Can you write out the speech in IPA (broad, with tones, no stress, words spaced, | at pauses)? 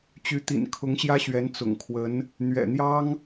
t͡ɕy˧˥t̪ḭ˨˩n kʰʊ˧˥ŋɕjä˥ɕɥɛ˧˥n t͡sʊ̰˨˩ŋkʰwə˧˥n | n̪ɥɛ̰˨˩n̪jɑ˥ŋ